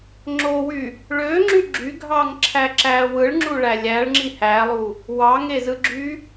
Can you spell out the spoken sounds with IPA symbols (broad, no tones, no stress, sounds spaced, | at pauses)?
ŋ͡ǁ o w y | ɭ ø ŋ͡ǁ y ɡ͡ǁ y ɡʱ ɑ ŋ ǁʰ æ ǁ æ w ɯ ɭ ŋ͡ǁ u ɭ æ lʲ æ ɭ ŋ͡ǁ i h æ lˠ u | w ɑ ŋ e z ɯ ɡ͡ǁ y